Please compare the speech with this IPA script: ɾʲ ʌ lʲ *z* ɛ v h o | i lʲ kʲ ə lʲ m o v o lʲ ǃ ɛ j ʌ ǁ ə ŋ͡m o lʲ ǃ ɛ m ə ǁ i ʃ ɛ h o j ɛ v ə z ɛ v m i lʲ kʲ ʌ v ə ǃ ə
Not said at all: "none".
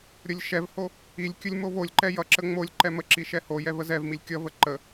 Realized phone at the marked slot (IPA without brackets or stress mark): ʃ